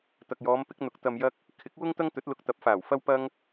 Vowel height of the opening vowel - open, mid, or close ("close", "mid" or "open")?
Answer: open